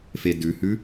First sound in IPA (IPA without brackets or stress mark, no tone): f